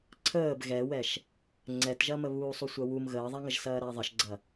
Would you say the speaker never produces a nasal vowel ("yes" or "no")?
yes